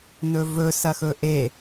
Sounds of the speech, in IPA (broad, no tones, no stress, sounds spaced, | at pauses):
n ɵ v ɵ s ɐ x ɵ ʔ e